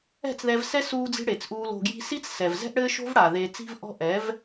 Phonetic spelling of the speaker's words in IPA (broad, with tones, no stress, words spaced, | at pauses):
ɛ̤˦˨t͡sðɛ˧vsɛ˦ suː˧d͡zi̤˧ ɽe˨t͡sʔuː˧l o̤˧ɡji̤˦ si˦t͡s sɛ˨vzɛ̤˦ʔɽɘː˦ ʃo̤˦vɽa˨ ðeː˧ t͡si̤˧vʔɔ̤˧ ʔɛ˨˦v